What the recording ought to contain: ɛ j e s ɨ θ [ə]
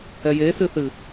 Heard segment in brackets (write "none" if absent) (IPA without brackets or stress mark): ɨ